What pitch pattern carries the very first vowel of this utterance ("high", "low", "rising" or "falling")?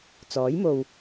rising